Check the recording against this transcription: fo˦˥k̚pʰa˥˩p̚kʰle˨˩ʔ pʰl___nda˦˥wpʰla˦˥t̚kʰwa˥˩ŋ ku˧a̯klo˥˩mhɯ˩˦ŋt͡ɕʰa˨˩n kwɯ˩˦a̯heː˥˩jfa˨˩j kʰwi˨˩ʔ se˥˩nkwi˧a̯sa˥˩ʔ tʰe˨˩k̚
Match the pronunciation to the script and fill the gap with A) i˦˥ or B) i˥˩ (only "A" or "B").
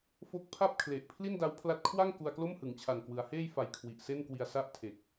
B